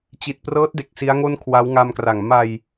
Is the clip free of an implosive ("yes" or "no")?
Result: yes